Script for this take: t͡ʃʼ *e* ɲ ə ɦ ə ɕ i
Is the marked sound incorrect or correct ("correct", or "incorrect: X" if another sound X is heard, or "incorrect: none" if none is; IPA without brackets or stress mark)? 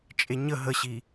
correct